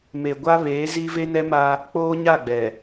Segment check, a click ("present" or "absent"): absent